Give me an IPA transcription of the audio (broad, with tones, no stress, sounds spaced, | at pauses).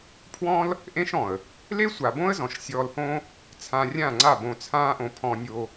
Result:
pʰ w ɔ̃˦ l | ʔ ẽ˦ ʃ ɔ̃˨ ə̯ | l e˦ sʷ a˨ b õ˦ ə̯ z ɔ̃˨ ʃ sʲ ɔː˧ l h õ˦ | t͡sʰ ã˧ rʲ ã˦˨ ŋ͡ǀ a˦˨ b õ˧ t͡sʰ ãː˦ ʔ õ˧ pʰ ɔ̃˦ nʲ o˦